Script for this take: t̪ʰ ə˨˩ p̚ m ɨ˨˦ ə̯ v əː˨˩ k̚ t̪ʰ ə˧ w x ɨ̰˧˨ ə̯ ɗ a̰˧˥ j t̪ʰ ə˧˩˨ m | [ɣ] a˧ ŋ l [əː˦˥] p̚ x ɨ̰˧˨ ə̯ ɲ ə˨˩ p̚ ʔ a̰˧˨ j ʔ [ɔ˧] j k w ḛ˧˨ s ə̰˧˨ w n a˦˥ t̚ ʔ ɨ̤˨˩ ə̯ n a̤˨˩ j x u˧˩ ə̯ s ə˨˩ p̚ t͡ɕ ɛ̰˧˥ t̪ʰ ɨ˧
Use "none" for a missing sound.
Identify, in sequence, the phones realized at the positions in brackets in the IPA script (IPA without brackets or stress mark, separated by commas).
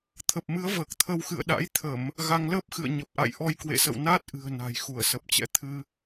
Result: ɣ, əː˦˥, ɔ˧